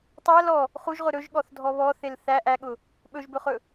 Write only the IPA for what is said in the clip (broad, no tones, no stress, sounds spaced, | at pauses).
tˤ æ l ɔ | χ u ʒ ʁ ʊ ɾ ɵ ʒ ɠ ɔ θ dʱ ɔ β ɔ θ e l θ æ ʔ æ ɠ ʊ | ɓ ɵ ʒ b ɵ χ ɵ